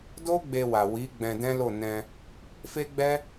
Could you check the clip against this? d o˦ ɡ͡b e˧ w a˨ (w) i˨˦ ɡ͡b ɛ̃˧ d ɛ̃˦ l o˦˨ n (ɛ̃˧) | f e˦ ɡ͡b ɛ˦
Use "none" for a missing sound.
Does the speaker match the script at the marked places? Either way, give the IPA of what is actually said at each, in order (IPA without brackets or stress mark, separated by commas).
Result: w, ɛ̃˧